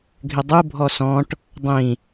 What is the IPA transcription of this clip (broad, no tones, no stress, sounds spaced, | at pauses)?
ɡʱ ɪ dˤ u bʱ ɔ s ɔ̃ ʈ | dˤ ĩ